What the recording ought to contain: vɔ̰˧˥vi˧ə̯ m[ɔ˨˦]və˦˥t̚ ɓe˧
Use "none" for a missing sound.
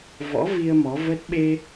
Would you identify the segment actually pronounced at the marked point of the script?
ɔ˨˦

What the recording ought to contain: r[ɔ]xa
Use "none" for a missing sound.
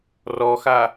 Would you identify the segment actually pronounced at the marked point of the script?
ɔ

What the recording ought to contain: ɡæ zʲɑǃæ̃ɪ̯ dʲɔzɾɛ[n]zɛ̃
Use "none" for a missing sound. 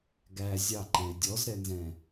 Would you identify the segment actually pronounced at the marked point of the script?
n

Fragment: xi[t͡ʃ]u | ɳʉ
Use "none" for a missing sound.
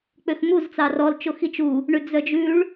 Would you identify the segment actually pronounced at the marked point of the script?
t͡ʃ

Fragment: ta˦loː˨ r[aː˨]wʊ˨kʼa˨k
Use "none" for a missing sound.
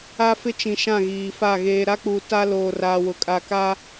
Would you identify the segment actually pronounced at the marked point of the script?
aː˨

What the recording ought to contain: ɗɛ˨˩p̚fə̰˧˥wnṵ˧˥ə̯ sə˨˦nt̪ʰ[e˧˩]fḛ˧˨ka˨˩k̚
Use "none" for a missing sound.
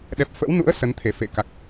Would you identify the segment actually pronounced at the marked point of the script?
e˧˩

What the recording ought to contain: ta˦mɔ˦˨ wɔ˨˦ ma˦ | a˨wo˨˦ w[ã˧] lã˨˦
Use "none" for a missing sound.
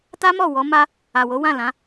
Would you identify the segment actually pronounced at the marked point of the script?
ã˦˨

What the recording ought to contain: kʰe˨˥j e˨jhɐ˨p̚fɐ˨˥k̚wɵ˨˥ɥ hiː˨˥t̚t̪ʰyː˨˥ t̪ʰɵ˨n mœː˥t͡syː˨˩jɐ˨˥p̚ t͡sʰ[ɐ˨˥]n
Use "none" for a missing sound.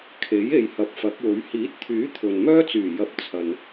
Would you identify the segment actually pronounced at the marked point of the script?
ɐ˨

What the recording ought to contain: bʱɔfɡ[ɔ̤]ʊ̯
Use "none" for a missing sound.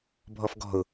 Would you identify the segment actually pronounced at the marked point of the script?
ɔ̤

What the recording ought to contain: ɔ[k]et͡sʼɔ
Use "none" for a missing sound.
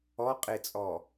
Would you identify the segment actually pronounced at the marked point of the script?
qʼ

